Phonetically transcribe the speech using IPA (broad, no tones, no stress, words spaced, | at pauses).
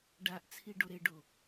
ɖaʔt͡sʰi ɖoɾeɖo